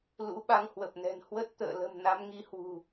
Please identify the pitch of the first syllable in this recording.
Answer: rising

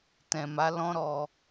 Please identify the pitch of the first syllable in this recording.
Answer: low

